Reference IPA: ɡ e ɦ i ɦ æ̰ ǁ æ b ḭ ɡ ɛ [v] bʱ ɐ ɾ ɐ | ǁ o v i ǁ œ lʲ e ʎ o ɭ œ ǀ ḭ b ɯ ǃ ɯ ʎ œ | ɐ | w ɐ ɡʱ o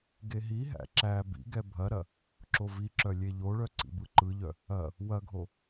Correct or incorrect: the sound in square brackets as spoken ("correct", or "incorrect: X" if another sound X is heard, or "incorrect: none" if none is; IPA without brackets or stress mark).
incorrect: none